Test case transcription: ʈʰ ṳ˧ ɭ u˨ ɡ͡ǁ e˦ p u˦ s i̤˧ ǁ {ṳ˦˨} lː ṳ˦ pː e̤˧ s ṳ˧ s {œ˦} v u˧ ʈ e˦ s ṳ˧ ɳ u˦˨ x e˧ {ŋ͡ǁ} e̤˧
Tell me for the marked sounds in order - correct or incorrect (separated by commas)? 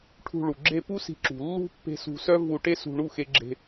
incorrect, correct, incorrect